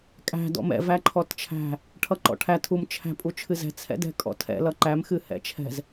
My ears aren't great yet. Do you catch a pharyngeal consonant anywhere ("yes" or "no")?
no